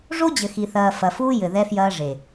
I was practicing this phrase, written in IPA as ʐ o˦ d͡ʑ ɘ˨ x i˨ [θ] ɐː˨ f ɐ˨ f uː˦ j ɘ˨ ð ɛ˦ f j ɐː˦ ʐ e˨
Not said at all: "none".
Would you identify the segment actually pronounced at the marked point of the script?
θ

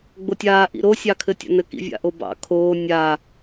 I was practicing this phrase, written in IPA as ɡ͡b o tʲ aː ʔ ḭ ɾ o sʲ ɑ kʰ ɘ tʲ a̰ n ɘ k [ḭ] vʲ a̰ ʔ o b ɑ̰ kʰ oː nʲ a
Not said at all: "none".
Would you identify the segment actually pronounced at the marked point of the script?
ḭ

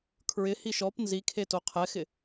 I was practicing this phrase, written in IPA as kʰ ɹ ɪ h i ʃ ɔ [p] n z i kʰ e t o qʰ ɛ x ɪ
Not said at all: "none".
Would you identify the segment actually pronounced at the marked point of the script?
p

